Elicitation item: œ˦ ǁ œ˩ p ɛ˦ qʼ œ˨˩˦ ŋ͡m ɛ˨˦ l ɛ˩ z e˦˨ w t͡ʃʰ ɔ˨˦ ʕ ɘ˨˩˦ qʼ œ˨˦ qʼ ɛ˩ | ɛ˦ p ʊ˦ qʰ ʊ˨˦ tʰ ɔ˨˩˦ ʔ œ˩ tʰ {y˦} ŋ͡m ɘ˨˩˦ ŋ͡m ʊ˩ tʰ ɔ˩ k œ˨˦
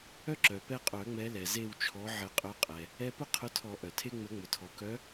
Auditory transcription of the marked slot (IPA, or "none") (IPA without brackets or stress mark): e˦